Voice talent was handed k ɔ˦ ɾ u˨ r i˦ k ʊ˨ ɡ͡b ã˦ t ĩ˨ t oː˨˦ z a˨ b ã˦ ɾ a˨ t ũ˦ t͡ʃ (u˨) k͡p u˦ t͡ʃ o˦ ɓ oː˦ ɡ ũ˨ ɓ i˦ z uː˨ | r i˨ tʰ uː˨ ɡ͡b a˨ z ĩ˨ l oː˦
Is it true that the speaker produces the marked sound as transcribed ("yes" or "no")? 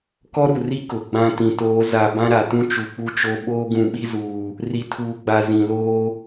yes